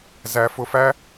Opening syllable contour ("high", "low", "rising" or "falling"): low